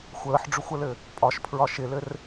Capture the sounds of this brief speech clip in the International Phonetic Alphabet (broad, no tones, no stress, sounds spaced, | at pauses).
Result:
xʷ əː ħ ɖ͡ʐ ɵ xʷ ə l ɘ | pʼ ɒ ʃ pʰ ɹ ɒ ʃ ɪ l ɘ r